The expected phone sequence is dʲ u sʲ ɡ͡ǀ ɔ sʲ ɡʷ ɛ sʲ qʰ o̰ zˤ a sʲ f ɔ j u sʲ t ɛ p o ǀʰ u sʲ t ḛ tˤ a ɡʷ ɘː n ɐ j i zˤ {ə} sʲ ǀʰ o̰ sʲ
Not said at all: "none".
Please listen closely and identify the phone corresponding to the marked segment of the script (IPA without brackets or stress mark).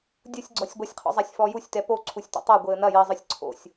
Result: ɨ